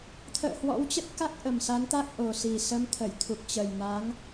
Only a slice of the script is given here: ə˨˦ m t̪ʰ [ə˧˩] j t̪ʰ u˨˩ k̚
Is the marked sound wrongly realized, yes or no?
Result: no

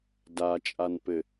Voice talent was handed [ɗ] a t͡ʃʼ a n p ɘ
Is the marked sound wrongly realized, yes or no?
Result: yes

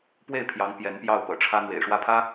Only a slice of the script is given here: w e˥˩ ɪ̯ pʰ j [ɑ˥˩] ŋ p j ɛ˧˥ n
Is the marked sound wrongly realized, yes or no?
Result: yes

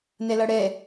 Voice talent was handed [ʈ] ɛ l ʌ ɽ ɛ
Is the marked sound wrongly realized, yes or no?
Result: yes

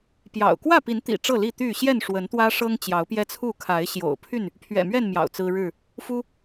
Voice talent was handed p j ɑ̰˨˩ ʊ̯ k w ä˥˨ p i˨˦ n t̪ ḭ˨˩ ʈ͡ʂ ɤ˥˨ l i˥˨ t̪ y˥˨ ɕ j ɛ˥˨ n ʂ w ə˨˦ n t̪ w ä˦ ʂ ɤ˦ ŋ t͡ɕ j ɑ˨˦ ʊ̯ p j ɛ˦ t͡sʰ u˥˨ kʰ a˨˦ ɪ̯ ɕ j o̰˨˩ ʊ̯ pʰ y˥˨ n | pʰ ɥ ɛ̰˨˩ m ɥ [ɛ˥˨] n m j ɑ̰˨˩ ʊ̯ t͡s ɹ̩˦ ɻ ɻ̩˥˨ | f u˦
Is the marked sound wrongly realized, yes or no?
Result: no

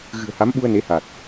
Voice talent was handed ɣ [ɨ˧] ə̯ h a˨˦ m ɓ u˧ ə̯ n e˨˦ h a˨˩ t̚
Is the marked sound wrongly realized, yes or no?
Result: yes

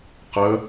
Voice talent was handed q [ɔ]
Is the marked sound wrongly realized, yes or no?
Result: yes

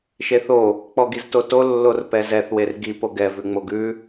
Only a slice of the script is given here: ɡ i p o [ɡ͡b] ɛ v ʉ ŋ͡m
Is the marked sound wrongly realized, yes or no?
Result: yes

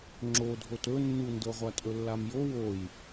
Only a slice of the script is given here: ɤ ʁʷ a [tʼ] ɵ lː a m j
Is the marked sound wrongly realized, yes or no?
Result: no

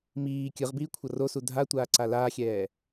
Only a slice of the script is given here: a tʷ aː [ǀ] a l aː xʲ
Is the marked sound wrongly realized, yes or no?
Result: no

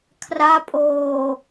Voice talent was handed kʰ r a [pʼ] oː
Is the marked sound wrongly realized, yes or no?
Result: no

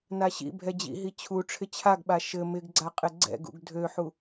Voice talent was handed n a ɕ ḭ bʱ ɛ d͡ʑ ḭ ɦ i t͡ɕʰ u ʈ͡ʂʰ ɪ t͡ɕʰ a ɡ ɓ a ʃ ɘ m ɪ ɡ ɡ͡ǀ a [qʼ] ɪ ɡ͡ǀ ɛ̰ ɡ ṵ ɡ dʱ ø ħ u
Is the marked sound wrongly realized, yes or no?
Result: no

